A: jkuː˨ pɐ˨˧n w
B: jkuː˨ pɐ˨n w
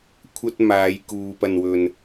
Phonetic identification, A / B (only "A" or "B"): B